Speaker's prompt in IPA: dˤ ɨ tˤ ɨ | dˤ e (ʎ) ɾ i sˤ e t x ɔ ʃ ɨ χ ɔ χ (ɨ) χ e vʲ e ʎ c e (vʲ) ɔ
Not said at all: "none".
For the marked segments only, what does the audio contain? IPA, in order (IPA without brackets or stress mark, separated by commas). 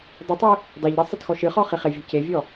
ʎ, i, vʲ